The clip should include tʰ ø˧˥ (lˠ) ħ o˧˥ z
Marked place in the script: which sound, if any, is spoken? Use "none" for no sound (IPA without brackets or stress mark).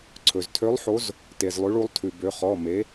lˠ